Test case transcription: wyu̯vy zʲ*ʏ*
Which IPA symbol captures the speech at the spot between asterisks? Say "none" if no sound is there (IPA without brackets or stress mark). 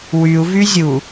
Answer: u